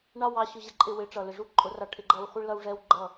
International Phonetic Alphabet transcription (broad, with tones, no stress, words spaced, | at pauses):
ɳɑ˦wɑ˧ ɕʊ˧ʑɛ˧ǃʼɪ˧ wɪ˨˦ʈ͡ʂʌ˨lɪ˨ ʐu˦ǃʼʊ˨˦rɑ˧ʈʰɪ˧ ɡ͡ǃʌ˧wχʷɪ˦ɭ lʌ˦wʐɛ˦w ɡ͡ǃʌ˦˨